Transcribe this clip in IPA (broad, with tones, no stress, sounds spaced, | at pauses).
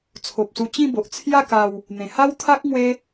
t͡sʰ o˨ p̚ s u˧ t͡ɕ ĩ˥˧ b o˨ ʔ t͡sʰ j a˥˧ k a˧ w | n̪ ẽ˨˩ h a˦ w t̪ʰ a˦ k̚ ŋ w e˦